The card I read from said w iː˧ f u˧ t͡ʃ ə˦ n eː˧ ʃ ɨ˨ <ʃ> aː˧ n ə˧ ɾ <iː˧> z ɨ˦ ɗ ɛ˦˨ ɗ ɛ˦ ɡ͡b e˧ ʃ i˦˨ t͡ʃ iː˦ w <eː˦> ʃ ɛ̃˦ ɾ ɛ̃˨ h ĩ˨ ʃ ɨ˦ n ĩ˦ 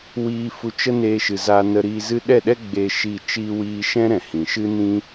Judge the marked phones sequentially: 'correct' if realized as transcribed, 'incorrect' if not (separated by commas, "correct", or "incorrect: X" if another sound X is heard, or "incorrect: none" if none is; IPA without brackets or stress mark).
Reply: incorrect: z, correct, incorrect: iː˦